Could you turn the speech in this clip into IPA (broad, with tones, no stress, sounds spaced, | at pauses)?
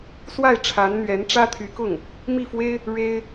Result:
s w a˥˩ ɪ̯ ʈ͡ʂʰ a˧˥ n n̪ ɥ ɛ˧˥ n ʈ͡ʂ ä˥ t̪ʰ y˧˥ k ʊ˥˩ ŋ | m i˥˩ f w e˥ ɪ̯ | ɻ e˥ ɪ̯